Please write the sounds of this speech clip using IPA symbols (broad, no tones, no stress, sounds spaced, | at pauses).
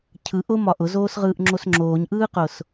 cʰ ɯ ʔ ʊ m ɒ ʔ ʊ z oː s ʁ ɯː ʔ ŋ͡ǁ o s ŋ͡ǁ oː ɲ ʔ ɯː q ʊ s